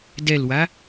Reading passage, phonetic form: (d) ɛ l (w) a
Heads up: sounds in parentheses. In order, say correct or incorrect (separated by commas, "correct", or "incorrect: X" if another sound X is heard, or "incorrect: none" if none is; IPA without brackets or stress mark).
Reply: correct, correct